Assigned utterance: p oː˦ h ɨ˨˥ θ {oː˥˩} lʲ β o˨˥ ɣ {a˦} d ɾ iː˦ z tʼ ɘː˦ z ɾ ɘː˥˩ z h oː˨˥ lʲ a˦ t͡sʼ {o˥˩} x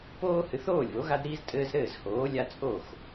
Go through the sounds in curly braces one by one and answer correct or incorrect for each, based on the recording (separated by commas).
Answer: correct, correct, correct